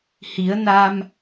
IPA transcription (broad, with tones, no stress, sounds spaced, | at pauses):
h i˨˩˦ ə̯ n a˧ m